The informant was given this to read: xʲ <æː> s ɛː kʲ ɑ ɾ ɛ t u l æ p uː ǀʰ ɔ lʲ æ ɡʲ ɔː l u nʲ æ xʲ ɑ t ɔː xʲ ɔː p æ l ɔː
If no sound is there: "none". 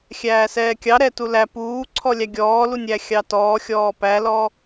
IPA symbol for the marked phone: æː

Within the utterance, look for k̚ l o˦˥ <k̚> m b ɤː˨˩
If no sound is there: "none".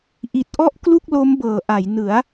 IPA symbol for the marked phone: none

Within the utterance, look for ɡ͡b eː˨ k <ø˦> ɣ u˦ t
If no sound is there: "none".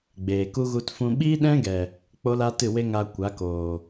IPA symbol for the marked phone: u˦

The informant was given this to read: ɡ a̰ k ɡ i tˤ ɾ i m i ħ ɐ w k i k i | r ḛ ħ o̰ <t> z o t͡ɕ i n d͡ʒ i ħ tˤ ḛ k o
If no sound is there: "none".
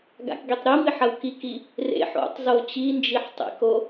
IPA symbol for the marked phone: tˤ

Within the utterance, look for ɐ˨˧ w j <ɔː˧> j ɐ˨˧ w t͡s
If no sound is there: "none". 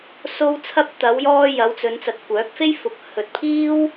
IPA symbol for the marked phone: ɔː˧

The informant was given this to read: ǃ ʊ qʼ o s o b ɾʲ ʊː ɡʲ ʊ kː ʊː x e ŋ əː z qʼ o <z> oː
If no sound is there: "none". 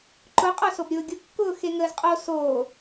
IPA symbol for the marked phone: s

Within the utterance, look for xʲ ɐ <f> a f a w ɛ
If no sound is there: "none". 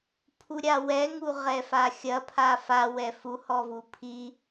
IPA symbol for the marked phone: pʰ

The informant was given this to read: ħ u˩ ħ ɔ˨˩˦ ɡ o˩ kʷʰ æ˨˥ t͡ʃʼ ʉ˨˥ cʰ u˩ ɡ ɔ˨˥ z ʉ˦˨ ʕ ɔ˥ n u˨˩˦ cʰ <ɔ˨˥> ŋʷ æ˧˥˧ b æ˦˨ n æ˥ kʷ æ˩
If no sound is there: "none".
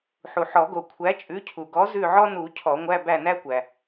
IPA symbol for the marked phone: ɔ˨˩˦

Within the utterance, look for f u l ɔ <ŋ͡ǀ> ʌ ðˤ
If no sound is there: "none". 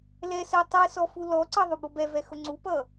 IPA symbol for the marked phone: ǀ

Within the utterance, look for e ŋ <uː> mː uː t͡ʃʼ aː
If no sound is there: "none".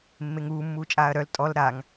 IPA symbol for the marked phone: uː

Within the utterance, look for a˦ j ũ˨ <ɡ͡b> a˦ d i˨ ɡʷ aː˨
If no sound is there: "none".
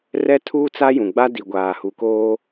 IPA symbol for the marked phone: ɡ͡b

